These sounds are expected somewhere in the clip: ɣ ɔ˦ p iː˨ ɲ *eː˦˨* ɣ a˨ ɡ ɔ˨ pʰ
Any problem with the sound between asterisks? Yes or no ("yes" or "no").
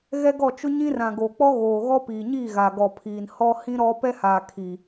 yes